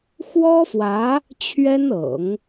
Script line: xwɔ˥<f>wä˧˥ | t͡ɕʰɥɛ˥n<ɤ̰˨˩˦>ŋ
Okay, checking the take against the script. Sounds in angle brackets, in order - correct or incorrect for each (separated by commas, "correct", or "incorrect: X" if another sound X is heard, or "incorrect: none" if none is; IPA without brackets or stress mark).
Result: correct, correct